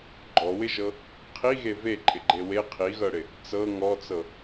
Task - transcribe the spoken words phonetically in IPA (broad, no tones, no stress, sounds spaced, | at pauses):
ɡ͡ǃ ɔ w ɪ ʒ ɤ | qʰ i ɣ e v e ǃʼ ɪ ɡ͡ǃ e w e qʰ i ɣ ɤ ɽ ɪ | t͡s ɤ ŋ ɔ t͡s ɤ